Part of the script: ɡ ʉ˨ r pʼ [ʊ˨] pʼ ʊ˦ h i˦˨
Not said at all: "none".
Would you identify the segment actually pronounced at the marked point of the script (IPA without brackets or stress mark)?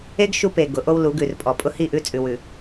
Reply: ɔ˨